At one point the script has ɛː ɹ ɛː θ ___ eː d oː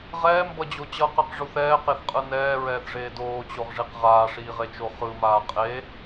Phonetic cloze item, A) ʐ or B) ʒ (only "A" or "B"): A